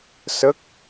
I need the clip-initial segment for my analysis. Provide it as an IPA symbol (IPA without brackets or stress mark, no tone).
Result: s